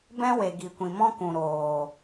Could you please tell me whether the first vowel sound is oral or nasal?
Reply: nasal